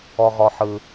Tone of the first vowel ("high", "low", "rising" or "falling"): low